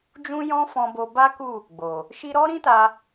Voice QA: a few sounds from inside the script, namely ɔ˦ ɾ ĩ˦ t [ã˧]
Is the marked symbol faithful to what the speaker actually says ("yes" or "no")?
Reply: no